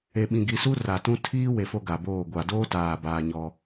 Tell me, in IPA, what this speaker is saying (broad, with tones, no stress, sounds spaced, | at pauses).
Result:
e˨ ɓ ĩ˨ ɡ i˨ s u˦ r a˨ t ũ˦ tʰ iː˦ w e˨ f o˦ ɡ a˨ b oː˦˨ ɡʷ a˨ d oː˦ t aː˨ b aː˨ ɲ ɔ˦